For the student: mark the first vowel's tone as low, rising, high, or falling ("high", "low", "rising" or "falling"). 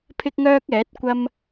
high